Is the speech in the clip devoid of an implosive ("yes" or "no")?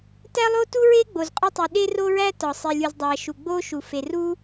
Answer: no